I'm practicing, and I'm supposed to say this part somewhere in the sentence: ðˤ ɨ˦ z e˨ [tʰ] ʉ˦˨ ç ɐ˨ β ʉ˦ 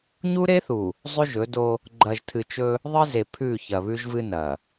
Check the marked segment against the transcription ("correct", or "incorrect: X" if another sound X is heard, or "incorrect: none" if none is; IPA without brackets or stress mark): incorrect: pʰ